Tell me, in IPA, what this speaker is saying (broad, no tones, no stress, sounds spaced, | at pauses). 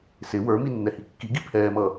s ɪ w ə˞ m i nː ɛ h i kː i ɡ i pʰ ɛː m ʌː